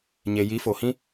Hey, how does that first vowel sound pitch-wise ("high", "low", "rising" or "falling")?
low